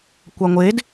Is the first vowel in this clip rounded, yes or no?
no